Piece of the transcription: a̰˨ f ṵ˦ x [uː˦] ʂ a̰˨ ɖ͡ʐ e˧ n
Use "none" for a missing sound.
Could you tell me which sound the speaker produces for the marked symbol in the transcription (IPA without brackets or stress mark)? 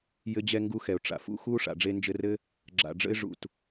uː˦